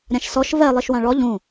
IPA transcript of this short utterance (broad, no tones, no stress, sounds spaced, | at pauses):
ɾʲ ã ʃ s ɔ ʃ v ɛ lˠ i ʃ w ã ɭ ɔ ʎ ũ